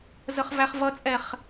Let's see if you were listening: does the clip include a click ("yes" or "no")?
no